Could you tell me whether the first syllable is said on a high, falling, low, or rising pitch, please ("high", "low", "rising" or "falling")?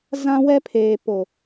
high